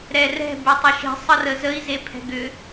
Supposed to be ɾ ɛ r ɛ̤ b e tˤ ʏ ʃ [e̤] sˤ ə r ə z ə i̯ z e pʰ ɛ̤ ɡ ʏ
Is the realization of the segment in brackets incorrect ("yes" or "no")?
no